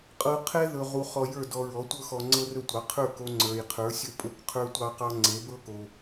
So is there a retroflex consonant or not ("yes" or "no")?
no